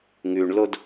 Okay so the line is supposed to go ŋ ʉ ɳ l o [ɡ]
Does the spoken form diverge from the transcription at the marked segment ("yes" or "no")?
yes